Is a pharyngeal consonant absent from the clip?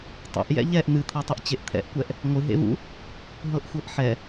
no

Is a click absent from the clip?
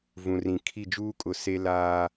yes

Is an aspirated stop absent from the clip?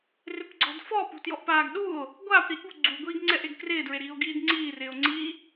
yes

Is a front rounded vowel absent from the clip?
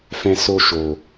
yes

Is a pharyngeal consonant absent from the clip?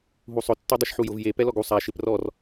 no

